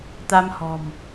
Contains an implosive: no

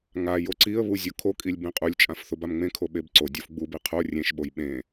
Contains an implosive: yes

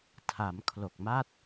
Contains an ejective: no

